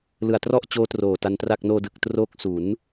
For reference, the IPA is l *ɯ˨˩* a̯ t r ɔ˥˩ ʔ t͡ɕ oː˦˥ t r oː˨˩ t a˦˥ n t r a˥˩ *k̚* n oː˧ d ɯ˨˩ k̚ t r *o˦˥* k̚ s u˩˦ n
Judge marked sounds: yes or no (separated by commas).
yes, yes, yes